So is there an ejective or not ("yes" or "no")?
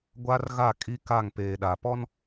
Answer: yes